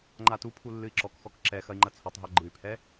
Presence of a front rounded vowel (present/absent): present